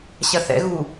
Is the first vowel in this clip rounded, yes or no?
no